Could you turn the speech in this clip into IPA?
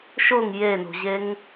ʃ ʊ ŋ j e n o̤ ʑ e ŋ

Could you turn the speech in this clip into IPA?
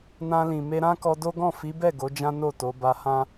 n ã˧ l ĩ˨ m e˧ ɾ ã˦ k ɔ˧ d o˦ ɡ ɔ̃˦˨ f i˨˦ b ɛ˦˨ ɡ o˨˦ d͡ʒ ã˦ n o˦˨ t o˨˦ b a˧ h ã˦

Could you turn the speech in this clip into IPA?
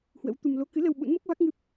h w ə̰˧˥ w t̪ u˧ m l o˨˦ k ɨ˨˦ l ə˧ w ɓ ṵ˧˥ n m o˦˥ k̚ v a˦˥ k̚ ŋ ɨ˦˥ p̚

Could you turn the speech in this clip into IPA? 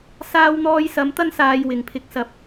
s aː˧ w n̪ ɔː˧ j s ɐ˨˥ m t̪ ɐ˥ n s aː˧ j w ɪ˨ ŋ pʰ ɪ˧ k̚ s ɐ˧ p̚

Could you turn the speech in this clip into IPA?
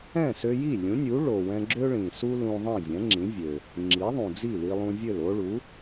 ɛ̃˥˩ s ø˧ j i˥˩ lʲ ũ˩˥ nʲ u˩˥ ɭ o˩ w ɛ̃˧ ɡ͡ǁ ø˥ ɭ ĩ˩ s u˥ l ũ˧ ðˤ ĩ˥˩ zʲ ɛ̃˩˥ ŋ͡ǁ ĩ˩˥ vʲ ø˩ | ŋ͡ǁ i˩˥ ðˤ ũ˩ d͡z i˥˩ l i˧ lˠ ũ˧ vʲ ø˥˩ l o˥ ɭ u˩˥

